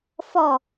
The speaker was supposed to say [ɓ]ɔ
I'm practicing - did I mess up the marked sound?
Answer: yes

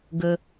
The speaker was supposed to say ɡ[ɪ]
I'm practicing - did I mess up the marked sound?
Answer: yes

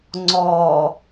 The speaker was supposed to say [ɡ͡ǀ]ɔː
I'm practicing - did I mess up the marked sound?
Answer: yes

